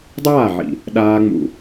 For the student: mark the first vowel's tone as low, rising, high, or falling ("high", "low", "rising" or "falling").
falling